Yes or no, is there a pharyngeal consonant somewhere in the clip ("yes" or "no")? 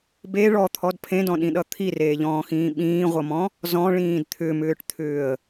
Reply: no